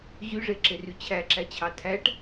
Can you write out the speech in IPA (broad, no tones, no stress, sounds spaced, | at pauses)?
ʑ y ʐ e ǁ e r y t͡ɕʰ æ ǁ æ t͡ɕʰ ɑ tʰ æ ʈ